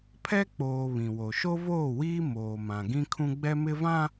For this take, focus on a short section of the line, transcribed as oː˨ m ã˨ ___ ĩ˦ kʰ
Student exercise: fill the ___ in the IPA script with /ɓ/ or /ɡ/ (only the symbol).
ɡ